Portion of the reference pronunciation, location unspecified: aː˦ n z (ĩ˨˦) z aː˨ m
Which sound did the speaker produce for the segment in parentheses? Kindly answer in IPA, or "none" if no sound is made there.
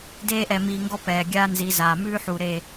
i˨˦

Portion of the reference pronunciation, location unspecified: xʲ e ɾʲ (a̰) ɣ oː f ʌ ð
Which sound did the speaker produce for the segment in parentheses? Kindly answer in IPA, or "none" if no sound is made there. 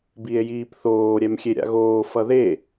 a̰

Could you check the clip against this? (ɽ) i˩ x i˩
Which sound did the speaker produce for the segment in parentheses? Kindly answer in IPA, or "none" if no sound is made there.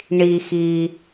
ɳ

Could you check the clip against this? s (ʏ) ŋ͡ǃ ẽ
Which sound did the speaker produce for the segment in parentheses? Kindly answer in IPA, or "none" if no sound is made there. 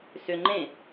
ʏ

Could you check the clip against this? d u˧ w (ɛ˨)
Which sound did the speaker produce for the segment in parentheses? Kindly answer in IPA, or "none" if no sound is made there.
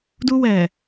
ɛ˨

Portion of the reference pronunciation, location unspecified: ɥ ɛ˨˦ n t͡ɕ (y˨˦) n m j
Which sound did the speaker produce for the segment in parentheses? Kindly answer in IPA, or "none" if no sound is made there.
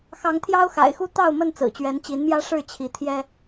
i˨˦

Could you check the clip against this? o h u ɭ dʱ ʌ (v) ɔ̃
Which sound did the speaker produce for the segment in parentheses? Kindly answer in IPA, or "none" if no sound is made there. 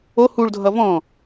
v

